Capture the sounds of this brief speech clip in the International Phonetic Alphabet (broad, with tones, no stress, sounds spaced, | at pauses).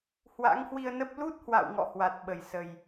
h w a̰˧˥ ŋ h w i˧ ə̯ n ə˦˥ p̚ l u˦˥ t̚ h w a̰˧˨ w ŋ ɔ̰˧˨ h w a˨˩ t̚ ɓ ə˧˩ j s ə˨˩ j